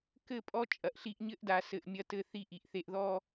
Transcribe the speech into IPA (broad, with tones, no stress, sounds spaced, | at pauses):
k ɘ˦˨ pʼ ɔ˦ t͡ʃʼ ɐ˨ ʔ ɬ i˦ ʔ ɲ ɘ˦ ʔ d a˨ s ɘ˨ ʔ mʲ ɐ˦ t ɘ˦ θ i˦ ʔ i˨ ʔ θ e˨ ʔ ð ɔ˦